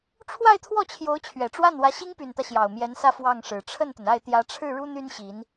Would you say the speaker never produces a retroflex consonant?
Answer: no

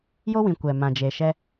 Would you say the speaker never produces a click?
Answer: yes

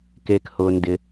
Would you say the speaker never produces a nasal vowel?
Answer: yes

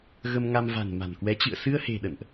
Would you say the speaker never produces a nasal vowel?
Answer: yes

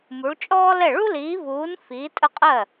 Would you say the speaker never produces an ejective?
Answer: no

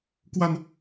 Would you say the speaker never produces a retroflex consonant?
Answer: yes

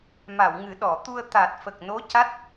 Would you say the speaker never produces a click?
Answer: yes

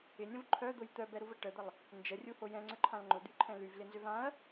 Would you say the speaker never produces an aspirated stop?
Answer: no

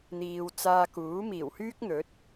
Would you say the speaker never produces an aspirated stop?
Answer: yes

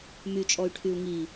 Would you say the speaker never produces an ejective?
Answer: no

